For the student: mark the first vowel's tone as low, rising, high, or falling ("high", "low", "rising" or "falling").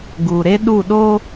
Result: low